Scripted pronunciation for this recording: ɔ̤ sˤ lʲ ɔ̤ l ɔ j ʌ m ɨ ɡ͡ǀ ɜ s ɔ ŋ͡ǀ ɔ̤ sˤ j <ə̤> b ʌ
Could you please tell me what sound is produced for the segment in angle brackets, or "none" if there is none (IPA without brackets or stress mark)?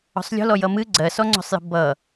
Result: ə̤